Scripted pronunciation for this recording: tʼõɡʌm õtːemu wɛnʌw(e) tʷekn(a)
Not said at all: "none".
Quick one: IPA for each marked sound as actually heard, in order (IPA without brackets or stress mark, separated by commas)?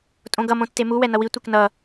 i, ʌ